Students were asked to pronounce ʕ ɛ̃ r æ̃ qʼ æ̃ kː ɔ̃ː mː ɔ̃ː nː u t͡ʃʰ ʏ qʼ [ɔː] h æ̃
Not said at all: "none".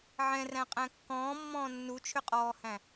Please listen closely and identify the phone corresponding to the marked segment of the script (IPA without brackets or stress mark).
ɔː